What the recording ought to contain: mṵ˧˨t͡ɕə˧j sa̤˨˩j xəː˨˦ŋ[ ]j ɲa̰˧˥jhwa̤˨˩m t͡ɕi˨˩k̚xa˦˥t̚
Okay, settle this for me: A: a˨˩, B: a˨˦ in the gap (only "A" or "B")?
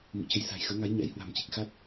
B